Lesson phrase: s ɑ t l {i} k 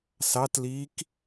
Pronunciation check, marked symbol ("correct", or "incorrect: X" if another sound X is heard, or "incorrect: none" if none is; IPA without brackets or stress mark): incorrect: iː